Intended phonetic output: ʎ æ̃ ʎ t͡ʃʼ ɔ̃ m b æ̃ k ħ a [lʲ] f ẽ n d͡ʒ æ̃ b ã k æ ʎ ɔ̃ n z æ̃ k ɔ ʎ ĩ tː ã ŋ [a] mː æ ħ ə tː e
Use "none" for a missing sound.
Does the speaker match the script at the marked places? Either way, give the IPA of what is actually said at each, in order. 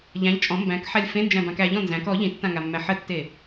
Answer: lʲ, a

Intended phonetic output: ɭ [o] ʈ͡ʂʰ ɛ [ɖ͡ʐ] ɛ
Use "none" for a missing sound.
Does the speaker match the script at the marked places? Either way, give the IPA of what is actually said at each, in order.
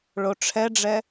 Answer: o, ɖ͡ʐ

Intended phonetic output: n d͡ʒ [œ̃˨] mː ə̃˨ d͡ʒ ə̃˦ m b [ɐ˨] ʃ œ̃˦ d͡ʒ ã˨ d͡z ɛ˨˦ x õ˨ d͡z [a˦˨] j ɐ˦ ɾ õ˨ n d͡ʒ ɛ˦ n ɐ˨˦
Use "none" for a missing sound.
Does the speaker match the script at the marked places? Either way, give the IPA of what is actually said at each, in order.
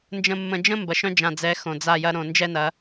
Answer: ə̃˨, ɐ˨, a˦˨

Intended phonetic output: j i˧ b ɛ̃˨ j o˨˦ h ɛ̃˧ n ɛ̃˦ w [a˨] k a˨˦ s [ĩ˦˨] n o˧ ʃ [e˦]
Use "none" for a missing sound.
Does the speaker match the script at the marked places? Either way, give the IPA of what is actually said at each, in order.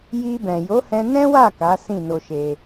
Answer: a˦˨, ĩ˦˨, e˧

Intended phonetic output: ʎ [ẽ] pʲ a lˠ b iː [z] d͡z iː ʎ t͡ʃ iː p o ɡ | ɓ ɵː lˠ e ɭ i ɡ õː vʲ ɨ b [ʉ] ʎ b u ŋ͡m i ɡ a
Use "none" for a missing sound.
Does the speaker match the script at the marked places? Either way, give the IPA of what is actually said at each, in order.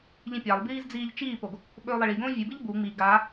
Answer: ĩ, z, ɨ

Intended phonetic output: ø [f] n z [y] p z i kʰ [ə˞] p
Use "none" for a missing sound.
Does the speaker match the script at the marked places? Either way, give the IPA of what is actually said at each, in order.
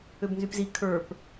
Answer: b, y, ə˞

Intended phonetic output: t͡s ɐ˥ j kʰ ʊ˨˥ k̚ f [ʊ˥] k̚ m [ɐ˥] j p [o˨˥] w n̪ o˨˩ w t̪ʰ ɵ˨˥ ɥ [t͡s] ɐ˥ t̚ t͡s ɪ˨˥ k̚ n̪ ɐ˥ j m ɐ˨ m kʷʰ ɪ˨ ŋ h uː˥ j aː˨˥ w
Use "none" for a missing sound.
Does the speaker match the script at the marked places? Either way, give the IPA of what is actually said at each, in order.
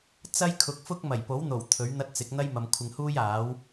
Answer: ʊ˥, ɐ˨˩, o˨˥, n̪

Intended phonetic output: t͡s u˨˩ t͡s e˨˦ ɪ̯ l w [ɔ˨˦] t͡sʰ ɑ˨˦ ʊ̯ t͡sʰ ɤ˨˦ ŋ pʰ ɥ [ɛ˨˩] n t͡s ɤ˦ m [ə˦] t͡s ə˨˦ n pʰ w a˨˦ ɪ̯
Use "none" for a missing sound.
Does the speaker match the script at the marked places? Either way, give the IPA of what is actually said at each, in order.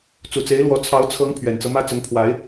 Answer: ɔ˨˦, ɛ˨˩, ä˦

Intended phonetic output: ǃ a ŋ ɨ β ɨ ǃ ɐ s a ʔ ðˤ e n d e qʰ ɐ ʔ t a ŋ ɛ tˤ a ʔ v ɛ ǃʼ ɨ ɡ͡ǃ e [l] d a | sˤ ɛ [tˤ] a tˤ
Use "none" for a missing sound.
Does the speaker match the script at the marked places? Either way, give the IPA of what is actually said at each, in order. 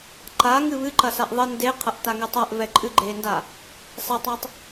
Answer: n, tˤ

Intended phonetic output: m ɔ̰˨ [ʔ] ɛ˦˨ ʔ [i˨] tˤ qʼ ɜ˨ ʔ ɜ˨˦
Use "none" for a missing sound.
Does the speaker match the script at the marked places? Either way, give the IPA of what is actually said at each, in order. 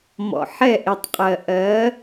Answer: ħ, i˨

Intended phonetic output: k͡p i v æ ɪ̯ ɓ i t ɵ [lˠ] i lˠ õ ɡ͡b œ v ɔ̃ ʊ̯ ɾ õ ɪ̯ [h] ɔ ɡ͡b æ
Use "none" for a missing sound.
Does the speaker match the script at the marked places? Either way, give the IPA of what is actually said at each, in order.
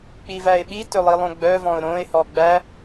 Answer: lˠ, h

